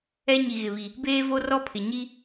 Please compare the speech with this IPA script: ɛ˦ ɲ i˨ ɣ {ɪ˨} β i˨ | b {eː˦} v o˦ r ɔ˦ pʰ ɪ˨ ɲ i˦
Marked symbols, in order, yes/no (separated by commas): yes, yes